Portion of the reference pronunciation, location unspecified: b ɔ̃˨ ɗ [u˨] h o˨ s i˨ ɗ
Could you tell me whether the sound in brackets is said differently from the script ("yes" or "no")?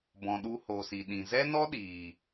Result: yes